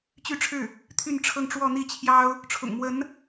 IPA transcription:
t͡ɕ y˥˧ ʈ͡ʂʰ ɻ̩˥˩ | t̪ʰ y˥˧ n ʈ͡ʂʰ ɤ˥˧ ŋ ʈ͡ʂ w ɔ˥˧ n̪ i˥˩ t͡ɕʰ j ɑ˥ ʊ̯ | ʈ͡ʂʰ ʊ̰˨˩ ŋ m w ə˧˥ n

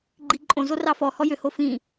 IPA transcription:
ɡ͡ǃ i ǃʼ õ z o r ɑ f ɔ h ɔ j ʏ h o f ĩ

